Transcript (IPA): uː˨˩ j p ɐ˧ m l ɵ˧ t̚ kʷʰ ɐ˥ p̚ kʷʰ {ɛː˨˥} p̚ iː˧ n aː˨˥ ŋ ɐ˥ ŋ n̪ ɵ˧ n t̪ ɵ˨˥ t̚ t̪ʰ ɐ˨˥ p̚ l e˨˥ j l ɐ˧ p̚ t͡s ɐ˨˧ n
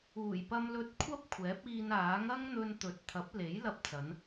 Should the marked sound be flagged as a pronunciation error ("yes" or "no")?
no